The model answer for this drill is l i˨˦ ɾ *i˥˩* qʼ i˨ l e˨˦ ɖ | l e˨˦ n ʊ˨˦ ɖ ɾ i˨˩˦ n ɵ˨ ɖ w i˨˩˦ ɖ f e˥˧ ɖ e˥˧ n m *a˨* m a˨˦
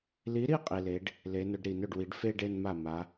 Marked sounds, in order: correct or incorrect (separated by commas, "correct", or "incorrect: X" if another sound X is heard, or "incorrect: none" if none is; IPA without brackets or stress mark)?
correct, incorrect: a˥˩